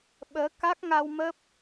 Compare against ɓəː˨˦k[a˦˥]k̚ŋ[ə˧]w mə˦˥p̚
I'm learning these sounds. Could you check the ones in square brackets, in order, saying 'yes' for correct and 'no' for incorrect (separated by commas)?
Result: yes, no